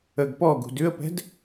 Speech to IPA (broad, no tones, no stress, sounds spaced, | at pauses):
ə ɡ p ɔ ɡ ṳ d ʉ ə̯ p ɛ̤ d